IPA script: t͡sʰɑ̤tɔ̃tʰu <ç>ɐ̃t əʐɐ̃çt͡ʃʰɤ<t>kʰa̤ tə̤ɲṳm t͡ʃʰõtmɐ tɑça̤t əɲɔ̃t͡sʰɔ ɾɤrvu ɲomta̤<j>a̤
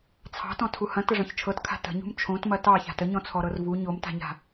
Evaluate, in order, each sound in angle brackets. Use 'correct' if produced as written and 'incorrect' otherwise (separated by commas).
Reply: incorrect, correct, incorrect